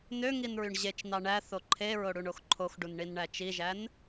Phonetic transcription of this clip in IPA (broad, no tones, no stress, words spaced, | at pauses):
nøŋinɹyɳ ʑet͡ʃnɑ ɳæθo ǃʰeɹoɽuɳox ǃʰoxɖunɳinɳæ t͡ʃiʒæn